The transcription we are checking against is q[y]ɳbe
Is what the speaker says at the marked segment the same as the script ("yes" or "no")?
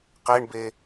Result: no